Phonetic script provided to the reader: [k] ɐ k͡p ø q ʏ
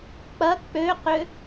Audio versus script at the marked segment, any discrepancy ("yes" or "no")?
yes